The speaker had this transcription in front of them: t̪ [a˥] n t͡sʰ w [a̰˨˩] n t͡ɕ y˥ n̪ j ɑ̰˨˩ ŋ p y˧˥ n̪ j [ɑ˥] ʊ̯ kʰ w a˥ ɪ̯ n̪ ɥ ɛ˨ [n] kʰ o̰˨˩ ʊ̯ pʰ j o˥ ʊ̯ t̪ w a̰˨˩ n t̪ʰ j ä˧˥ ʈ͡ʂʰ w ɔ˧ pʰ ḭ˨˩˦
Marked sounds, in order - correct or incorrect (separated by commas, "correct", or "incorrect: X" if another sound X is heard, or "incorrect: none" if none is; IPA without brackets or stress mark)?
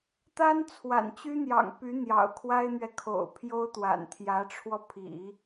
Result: correct, correct, incorrect: ɑ̰˨˩, incorrect: none